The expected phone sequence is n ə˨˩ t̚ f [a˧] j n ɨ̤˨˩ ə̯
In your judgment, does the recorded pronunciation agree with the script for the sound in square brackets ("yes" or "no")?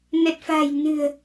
no